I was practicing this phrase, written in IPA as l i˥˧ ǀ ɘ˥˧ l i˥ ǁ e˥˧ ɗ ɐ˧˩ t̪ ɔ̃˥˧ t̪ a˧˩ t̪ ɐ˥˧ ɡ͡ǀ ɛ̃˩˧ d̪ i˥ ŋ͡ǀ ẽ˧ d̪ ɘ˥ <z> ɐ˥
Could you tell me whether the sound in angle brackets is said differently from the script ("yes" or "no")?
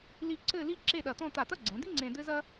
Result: no